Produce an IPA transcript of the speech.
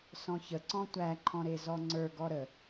s ɔ̃ ç ə ǀ ɔ̃ tʷ æ ǃʰ ɔ̃ ɾ e z ɔ ŋ͡ǀ ə˞ ɡ ɔ ɾ ə

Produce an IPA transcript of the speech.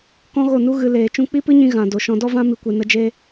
k ɔ̃˦ ɣ o˦˨ n u˦ ɣ ɨ˧ l eː˨ t͡ʃ ũ˧ k͡p i˦ p ɨ˦ ɲ ĩ˧ ɣ ã˨ d o˨ ʃ ɔ̃˧ d ɔ˦ v ã˦ m i˨ kʷ e˨ n ə˧ d͡ʒ e˦

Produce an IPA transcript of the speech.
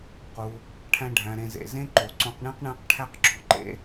q u˩ | ʈʰ æ̃˨ ɖʱ æ̃˩ ɾ ẽ˨ z ḛ˩ z ẽ˦ ǃ o˩ ǀ õ˨ q ɳ ĩ˦ q ɳ æ̃˦ q ʈʰ æ˦ q ǁ o̤˨ ǃ ḛ˥

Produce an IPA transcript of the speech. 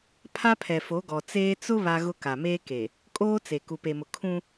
pʰ a˦ pʰ ɛ˨ f o˨˦ ɡ ɔ˨ t͡s eː˦ t͡s ʊ˦ β a˦ ɣ ʊ˦ k a˨ m eː˦ k e˨ | kʼ oː˦ t͡s e˨ k u˨ p e˨ m ʊ˨ kʰ ũ˦

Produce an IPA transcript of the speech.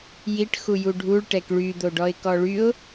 j i ʈ x u j u ɖʱ u ɭ ʈ ɛ k ɭ y d̪ o ɖ ɔ ɪ̯ k ɔ ɭ y ʊ̯

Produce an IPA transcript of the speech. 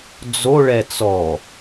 d͡z o ɭ ɛ t͡s ɔ

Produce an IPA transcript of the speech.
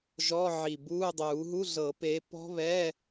ʒ ɔ˧˥˧ ʕ i˨˩ b uː˧˥˧ dˤ uː˨˩˦ ɦ u˧˥˧ ɮ ɤ˨˩˦ p eː˨˦ p ɔ̤˦˥ β ɛ˧˥˧

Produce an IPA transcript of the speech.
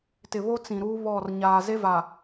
t ɪ˨ β o˦ t͡s ĩ˨ ɾ uː˦ β ɔ˦˨ r ɲ aː˨ z e˦ v a˨

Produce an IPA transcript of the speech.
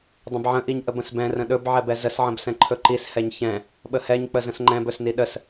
dˤ ə̃ b ʕ ə̃ ʔ i ɲ ʔ ə b ə̃ s b ɛ̃ r ə̃ ɗ ɵ b ʕ ɛ b ɛ z ə s ʕ ə̃ b s ɛ̃ ǃʰ ɵ ǃ i s h ɛ ɲ ç ɛ̃ | ɓ ə h ɛ ɲ k͡p ə z ə̃ s ŋ͡ǃ ɛ̃ b ɵ s n i ɗ ə s

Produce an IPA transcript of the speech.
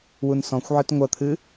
w u n s ɔ̃ xʷ ʕ ɨ t ŋʷ ɐ t̪ʰ ɨ

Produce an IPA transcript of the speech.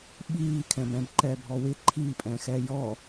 ɓ iː kʰ ɛ̃ b ɛ̃ b ǃ ɛː bʱ ɔ w ɪ ǃʰ iː pʼ ɛ̃ː x ɛː j ɔ

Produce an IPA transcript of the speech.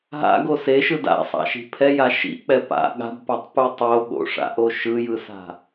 ɦ a̰ ɡ o s e ʃ ɯ d a̰ sˤ a̰ ʃ i̤ pʰ ɛ j a ʃ ḭ ʔ k͡p ɛ p a̰ ɠ a̤ b p a tˤ p u tˤ o ɠ o̰ ʂ a̰ ʔ o ʃ ɯ j ɯ s a̤

